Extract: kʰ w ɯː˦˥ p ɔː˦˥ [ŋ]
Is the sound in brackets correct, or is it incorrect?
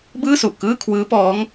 correct